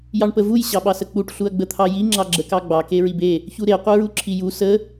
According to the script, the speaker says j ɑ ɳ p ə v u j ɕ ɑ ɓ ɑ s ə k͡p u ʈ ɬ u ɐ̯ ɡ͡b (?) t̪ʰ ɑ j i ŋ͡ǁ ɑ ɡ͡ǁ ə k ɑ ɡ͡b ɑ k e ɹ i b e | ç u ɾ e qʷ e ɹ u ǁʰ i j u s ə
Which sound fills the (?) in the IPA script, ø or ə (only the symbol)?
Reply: ə